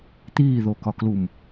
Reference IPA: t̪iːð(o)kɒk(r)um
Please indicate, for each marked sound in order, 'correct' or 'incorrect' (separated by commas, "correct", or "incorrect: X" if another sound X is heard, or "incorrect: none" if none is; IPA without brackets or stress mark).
correct, incorrect: l